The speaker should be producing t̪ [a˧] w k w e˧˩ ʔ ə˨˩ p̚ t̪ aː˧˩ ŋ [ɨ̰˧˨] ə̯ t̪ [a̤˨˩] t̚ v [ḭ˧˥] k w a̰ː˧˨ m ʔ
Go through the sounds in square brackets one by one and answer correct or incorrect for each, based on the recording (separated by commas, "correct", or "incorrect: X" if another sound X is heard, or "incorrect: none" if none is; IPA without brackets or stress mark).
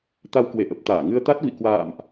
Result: correct, incorrect: ɨ˧, incorrect: a˦˥, incorrect: ḭ˧˨